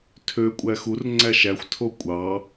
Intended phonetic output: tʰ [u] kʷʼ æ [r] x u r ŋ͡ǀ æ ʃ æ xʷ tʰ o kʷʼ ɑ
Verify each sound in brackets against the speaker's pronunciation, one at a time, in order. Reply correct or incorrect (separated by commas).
incorrect, incorrect